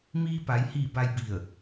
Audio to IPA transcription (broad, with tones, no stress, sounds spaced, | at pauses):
m iː˧ p a˩˧ j h iː˧˩ b a˧ j b i˧˩ ə̯